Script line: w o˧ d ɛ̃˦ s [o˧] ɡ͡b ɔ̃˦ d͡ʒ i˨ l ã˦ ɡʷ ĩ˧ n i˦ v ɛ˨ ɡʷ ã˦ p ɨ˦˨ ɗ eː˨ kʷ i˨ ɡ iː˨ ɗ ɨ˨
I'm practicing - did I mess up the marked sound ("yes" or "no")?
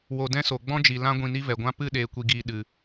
yes